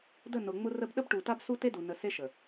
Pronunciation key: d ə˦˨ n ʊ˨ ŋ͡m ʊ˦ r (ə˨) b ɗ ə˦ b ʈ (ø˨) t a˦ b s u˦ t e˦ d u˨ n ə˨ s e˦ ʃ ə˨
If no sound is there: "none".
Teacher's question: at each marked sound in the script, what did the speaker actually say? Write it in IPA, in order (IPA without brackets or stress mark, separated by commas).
ə˦, u˨